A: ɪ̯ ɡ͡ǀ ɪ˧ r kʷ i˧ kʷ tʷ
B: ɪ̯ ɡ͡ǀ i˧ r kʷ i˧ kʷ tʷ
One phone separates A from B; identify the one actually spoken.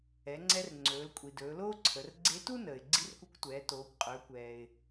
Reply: B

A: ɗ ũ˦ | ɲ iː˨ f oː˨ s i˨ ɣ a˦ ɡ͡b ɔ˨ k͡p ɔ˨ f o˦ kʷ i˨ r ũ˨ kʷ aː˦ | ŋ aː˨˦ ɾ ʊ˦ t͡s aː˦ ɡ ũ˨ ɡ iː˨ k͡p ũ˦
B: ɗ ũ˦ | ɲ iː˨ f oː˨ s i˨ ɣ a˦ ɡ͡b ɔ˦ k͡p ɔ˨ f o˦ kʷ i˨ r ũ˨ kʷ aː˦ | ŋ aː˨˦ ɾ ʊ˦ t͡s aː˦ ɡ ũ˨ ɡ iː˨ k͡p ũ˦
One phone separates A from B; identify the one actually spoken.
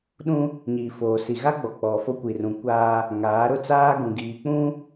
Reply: A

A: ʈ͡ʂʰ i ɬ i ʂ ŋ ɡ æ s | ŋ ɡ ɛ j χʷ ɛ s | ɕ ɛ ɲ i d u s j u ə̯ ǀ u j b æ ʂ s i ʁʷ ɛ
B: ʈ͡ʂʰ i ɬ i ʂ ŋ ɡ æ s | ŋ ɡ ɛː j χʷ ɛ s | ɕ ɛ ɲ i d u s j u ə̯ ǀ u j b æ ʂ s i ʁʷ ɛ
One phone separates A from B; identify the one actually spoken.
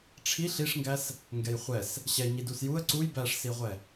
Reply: A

